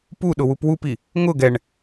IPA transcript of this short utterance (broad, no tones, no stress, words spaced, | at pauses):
puɗʊwup wupi | ŋʊ ɡɛɳ